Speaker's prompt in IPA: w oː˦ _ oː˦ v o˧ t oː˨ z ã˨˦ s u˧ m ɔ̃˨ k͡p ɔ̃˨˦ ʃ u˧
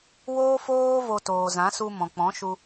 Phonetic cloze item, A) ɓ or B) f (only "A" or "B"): B